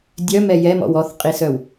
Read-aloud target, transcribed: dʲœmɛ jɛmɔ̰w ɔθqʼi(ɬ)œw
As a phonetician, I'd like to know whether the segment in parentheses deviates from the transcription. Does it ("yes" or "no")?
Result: yes